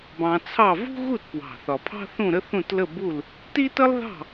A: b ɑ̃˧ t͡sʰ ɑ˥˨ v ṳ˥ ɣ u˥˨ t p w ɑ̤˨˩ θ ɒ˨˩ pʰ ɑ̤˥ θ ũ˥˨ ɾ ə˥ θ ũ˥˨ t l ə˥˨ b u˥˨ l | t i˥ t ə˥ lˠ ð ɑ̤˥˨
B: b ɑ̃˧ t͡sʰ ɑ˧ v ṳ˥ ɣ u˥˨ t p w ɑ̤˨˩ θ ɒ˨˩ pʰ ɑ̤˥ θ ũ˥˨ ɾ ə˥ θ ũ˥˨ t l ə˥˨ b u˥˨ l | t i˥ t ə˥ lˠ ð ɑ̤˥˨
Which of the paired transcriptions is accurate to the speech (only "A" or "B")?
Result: A